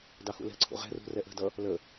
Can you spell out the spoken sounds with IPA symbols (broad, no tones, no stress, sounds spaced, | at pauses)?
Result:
d ɑ x ṵ l ɛ̤ ǀʰ ṵ ʁ ɛ̤ r ṳ r ɛ ʔ ə̤ d ʌ | l ə